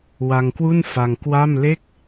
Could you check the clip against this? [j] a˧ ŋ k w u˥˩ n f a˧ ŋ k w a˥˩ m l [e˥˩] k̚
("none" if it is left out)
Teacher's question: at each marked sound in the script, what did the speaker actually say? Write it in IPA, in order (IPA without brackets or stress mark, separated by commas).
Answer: w, e˥˩